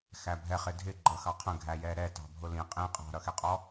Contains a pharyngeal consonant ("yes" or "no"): no